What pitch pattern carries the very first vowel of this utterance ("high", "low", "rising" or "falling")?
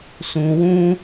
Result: low